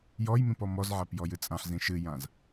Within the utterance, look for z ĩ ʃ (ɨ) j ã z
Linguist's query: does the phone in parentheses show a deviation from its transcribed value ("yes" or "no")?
no